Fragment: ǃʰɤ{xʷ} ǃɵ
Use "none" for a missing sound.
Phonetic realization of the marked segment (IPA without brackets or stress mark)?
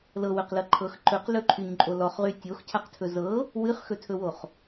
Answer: x